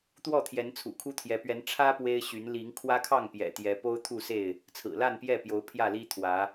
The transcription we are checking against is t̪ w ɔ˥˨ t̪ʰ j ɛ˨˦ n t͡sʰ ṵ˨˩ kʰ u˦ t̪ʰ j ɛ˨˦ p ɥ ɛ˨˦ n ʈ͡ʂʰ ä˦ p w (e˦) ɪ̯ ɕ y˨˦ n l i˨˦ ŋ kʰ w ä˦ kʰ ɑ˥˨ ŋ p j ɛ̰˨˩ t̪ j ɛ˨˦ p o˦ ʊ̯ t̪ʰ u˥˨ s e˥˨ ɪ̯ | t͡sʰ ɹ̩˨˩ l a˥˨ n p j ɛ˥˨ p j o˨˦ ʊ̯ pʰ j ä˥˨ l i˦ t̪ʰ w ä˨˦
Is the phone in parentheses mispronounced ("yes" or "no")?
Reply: no